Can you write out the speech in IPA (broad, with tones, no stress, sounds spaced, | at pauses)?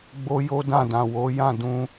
ɡ͡b o˦ j o˦ d ã˦˨ d ã˨ w o˨˦ j ã˦˨ d ũ˧